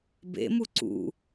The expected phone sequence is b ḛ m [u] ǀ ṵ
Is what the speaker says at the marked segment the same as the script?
yes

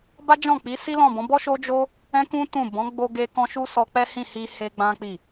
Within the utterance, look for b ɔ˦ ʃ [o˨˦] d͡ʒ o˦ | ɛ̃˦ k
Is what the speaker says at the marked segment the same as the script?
no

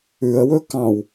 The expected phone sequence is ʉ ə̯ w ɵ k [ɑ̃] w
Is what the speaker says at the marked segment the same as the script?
yes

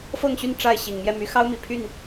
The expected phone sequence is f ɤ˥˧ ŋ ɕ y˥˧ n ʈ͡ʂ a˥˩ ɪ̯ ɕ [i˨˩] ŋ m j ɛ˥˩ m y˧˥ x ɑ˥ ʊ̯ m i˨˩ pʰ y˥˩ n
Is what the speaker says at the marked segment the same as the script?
yes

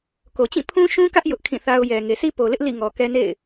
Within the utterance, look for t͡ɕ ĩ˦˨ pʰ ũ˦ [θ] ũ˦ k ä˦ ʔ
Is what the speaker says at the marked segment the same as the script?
no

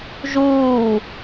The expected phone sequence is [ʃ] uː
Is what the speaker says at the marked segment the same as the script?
no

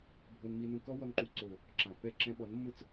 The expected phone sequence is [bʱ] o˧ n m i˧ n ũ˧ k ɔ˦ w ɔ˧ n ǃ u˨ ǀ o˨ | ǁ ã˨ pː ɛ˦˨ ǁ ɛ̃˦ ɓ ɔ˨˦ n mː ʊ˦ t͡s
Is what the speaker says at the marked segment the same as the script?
yes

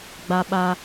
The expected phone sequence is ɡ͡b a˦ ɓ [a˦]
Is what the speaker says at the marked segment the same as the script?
yes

